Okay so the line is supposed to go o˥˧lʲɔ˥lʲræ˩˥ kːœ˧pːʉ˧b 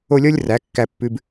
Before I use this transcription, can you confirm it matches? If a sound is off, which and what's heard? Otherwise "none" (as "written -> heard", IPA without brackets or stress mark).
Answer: œ˧ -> æ˧